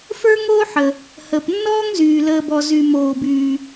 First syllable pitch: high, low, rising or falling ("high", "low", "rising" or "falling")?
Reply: high